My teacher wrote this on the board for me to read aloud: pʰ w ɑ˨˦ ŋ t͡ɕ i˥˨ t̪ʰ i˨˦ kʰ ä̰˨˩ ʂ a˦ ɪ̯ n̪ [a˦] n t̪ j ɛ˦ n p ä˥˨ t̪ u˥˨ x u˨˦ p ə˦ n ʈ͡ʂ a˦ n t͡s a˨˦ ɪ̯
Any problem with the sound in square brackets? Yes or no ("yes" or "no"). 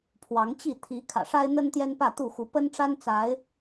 yes